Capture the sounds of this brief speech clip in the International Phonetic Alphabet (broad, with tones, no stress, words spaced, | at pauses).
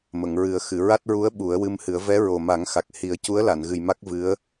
mə˨˩˨ŋɹɨ˨˩˦ə̯xɨ˨˩˨ ɹa˦˥t̚ɹu˧˥ə̯ ɓu˨˩˦ə̯wɨ˧mhɨ˨˩˦ə̯ vɛ˧˥ɹo˨˩ma˨˩˦ŋxa˨˩k̚ hi˨˩˦ə̯cu˧˥ə̯la˨˩˨nɣɨ˨˩j ma˦˥k̚vɨ˧˥ə̯